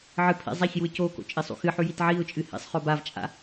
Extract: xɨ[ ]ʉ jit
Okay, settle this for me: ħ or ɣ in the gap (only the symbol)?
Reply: ħ